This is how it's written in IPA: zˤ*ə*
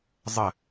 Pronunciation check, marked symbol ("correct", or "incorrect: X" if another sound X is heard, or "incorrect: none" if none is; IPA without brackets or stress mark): correct